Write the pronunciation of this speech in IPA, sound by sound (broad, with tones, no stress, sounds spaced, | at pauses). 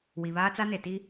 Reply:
w i˨ β aː˦ t͡s a˦ n e˨ t i˦